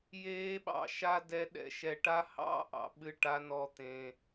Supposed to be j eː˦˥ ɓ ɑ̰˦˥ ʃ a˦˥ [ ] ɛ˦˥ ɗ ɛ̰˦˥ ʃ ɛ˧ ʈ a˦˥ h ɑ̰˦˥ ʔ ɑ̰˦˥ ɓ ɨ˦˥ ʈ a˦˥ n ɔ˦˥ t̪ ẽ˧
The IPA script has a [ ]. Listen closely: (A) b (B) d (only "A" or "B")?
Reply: B